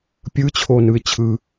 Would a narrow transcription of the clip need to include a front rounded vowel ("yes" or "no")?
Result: no